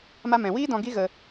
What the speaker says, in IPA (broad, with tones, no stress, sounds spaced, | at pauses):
m a˧ m ɛ̃˨ w iː˦ d ɔ̃˧ ɡ i˦ ɣ ə˧